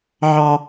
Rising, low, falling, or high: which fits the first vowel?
low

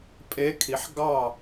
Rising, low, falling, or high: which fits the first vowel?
rising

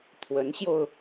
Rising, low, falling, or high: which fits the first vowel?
rising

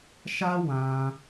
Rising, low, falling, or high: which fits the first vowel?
high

